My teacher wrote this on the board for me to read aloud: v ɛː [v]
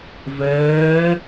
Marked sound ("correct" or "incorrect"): incorrect